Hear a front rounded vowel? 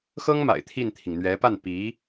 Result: no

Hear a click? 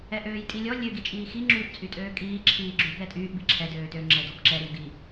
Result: yes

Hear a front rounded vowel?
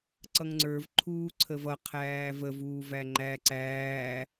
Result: no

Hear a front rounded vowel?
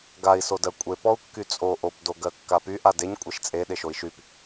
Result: yes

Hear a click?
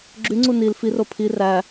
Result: yes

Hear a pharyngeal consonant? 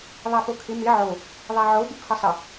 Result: yes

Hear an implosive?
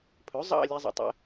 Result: no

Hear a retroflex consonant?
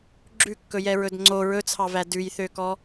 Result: no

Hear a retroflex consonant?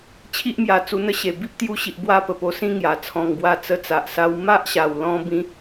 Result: no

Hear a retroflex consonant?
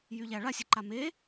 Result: yes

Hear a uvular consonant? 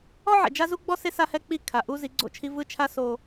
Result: no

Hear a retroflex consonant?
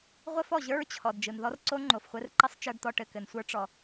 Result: yes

